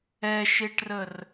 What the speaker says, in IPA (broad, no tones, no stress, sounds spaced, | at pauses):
ɛ ʃ e ʈ r ə r